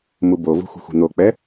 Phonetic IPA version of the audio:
m u b o v ṳ xʷ i̤ xʷ i̤ n̪ o k͡p ɛ

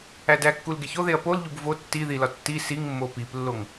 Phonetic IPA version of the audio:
æ d æ kː u l ɡ e ç o ð e ɐ̯ p o l ʎ u b v o tː i ð i l ɒ tː i s i ŋ mː o p i p lː o ŋ

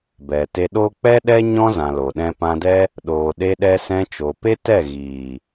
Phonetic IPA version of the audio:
b ɛ˨ t e˧ ɗ o˦ k͡p ɛ˦ ɗ ɛ˦ ɲ ɔ̃˦ z ã˨ l o˨ ɗ ɛ̃˧ p ã˧ d ɛ˦ | ɗ oː˨ ɗ e˧ ɗ ɛ˧ s ɛ̃˧ t͡ʃ o˨ p e˦ t ɛ˦˨ ɣ iː˨

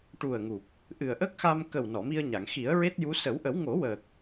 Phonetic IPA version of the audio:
ʈ u˨˩ ə̯ ŋ u˨˩ p̚ | ʔ ɨ˨˩ ə̯ ʔ ə˦˥ k̚ x a˧ m k ə˨˩ w n ɔ˨˩˨ m i˧ ə̯ ɲ a˨˩˨ ŋ x i˨˩˦ ə̯ ɹ e˦˥ t̚ j u˧˥ s ə˨˩˦ w ʔ ə˨˩˦ w ŋ o˨˩˦ w əː˨˩ k̚

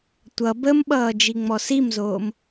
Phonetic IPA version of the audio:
tʷ ʌ b ə m ɓ ʌː d͡ʒ i ŋ͡m ɔ s i m z oː m

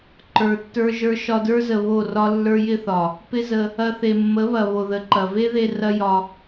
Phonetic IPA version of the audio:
ǃ ə˞˨ tː ə˞˧ ʒ ə˞˧ ʃ ɒ˧ d ə˞˦ z ə˨ β o˦˨ r ɒ˦ lː ə˞˦ j ɪ˦ θ ɒ˨ | p ɪ˦ z ə˧ | ɐ˧ θ e˨ mː ə˨˦ β ɐ˨ β o˨ ð ə˨ ǃ ɐ˨ v e˦ ð e˧ r ɐ˦ j ɒ˧

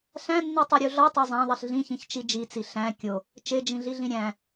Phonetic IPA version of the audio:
ɬ æ̃ nː i tˤ u ɾʲ u ɮ ɒ tˤ e zˤ æ̃ ðˤ i ɬ ɮ ĩ ç ĩ ç t͡ʃ i d͡ʒ i t͡s i ɬ æ̃ kʲ o | t͡ʃ e d͡ʒ ĩ ɮ i ɮ ĩ ɾʲ æ̃

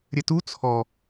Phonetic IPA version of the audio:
ɾʲ ɘ t u t͡sʰ ɔ

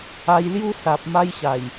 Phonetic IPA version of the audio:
a˧ j l j u˦ s a˨ p̚ m a˧ j ɕ a˨˩ j

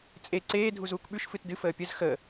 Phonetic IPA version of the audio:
t͡sʼ e ǀ eː dʱ u z uː k ɓ ʉ ʃ f ɨ t d ɨ f əː pʲ ə z x ə

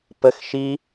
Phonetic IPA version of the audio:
p ə x ʃ i

